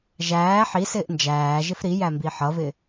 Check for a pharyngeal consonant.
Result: present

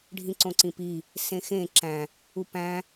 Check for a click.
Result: present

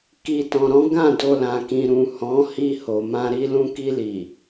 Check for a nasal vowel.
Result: present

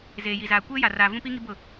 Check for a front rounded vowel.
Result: absent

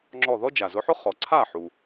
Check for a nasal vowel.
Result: absent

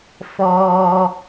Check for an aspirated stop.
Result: absent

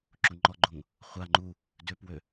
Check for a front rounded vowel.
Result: present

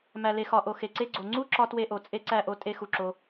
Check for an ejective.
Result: present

